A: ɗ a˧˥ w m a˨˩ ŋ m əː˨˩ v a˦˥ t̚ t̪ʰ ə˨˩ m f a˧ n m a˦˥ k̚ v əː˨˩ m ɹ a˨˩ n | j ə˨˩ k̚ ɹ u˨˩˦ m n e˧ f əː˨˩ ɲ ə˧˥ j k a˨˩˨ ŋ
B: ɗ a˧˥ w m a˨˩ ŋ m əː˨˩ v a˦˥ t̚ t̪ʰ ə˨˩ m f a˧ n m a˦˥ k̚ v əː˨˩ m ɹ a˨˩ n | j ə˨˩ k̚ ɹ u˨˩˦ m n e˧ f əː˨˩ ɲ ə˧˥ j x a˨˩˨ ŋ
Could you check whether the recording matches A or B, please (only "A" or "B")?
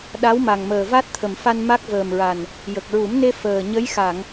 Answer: B